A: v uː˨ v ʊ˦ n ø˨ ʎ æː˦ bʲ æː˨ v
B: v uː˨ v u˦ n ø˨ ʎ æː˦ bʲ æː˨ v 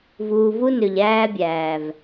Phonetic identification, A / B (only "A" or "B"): B